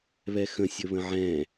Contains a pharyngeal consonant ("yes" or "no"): yes